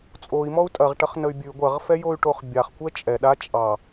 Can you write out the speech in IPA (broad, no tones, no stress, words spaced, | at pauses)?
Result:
t͡sʼoi̯mɔu̯ tʼɐʁʈɐχnəy̯ bʲʉ ɡʷɐʁfɛjoy̯ʈoχ bʲaχkʷɛ t͡ʃʼɛ ɗa t͡ʃʼɑ